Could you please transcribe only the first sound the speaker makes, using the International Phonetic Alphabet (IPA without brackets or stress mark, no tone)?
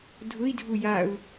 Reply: dʱ